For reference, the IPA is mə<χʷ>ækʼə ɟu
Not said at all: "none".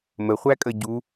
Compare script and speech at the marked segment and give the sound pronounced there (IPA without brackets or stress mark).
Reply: χʷ